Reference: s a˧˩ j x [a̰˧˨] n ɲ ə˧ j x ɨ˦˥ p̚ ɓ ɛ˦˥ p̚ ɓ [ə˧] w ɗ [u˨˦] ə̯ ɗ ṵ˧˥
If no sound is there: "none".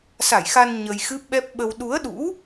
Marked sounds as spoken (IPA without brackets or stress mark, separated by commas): a˧, ə˧, u˨˦